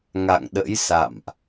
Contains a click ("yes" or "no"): no